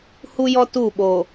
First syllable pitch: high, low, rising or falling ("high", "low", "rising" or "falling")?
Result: high